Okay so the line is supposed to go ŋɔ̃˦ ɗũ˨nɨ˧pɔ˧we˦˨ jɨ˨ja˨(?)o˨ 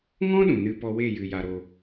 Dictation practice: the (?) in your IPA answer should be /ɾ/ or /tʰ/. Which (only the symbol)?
ɾ